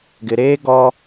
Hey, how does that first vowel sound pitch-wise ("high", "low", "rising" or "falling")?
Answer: low